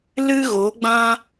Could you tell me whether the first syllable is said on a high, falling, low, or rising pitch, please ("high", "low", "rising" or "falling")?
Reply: high